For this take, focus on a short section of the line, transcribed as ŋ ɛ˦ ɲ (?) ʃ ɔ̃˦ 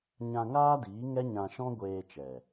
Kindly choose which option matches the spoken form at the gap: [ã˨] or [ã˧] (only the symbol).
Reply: ã˧